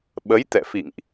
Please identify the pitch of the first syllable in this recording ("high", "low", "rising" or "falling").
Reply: rising